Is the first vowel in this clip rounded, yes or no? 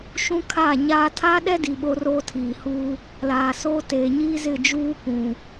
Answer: yes